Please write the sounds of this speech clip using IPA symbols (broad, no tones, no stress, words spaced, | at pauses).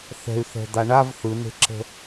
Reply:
θɛ̤y̯θɛ̤d̪a ɳav θɯne̤ǁə̤